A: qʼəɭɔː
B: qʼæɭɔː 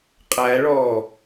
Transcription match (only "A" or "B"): B